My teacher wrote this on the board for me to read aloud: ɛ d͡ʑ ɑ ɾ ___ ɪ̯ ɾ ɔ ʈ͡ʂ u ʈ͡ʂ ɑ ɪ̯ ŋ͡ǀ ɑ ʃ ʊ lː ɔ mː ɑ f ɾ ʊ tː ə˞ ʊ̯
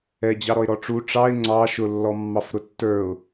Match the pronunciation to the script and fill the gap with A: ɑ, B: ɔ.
B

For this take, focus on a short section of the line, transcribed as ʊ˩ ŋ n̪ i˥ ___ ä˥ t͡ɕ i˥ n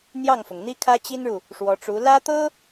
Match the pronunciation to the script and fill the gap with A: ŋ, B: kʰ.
B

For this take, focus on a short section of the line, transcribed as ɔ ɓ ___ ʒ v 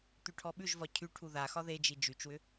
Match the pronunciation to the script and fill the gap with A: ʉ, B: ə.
A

